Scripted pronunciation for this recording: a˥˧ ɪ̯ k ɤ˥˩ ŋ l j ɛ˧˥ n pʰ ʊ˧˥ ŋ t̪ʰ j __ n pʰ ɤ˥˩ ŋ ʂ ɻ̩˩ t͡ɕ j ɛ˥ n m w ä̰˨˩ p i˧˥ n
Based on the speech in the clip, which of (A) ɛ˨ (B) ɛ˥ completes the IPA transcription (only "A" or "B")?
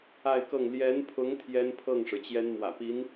B